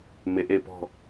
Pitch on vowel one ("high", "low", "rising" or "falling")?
low